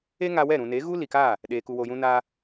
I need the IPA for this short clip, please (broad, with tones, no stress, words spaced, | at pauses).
e˦ŋa˧wɛ˦˨ ɾũ˨ne˨˦ ɣu˦li˨ka˦˨ | ɗeː˨ku˨wo˨jũ˧ na˧